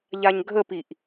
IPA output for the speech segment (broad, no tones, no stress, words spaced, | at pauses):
ʎaɲɡʱəpiʔ